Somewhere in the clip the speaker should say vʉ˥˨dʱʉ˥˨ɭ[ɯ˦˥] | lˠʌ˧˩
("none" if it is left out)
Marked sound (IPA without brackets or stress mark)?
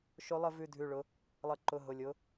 ʊ˦˥